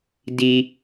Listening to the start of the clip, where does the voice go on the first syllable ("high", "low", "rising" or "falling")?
high